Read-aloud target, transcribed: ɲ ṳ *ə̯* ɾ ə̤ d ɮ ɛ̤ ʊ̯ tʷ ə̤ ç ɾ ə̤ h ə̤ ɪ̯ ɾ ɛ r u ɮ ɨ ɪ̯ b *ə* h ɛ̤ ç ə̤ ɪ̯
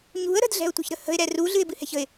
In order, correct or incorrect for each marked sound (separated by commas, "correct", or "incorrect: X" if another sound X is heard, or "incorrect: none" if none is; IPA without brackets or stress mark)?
correct, incorrect: ɨ